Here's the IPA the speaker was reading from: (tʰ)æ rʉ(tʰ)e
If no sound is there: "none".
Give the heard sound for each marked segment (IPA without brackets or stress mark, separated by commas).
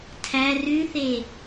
tʰ, θ